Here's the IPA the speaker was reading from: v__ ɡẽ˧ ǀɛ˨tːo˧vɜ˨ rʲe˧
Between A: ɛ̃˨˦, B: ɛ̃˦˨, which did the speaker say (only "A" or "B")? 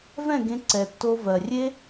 B